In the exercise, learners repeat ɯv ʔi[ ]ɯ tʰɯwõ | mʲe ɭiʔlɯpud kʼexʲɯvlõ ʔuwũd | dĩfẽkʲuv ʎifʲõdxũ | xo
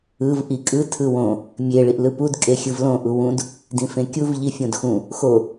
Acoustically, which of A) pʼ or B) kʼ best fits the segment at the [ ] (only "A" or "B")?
B